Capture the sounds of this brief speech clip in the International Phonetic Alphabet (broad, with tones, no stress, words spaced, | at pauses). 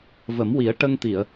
və˨˩˦mwi˨˩˦ə̯ ʈə˧ŋt̪i˨˩˨ə̯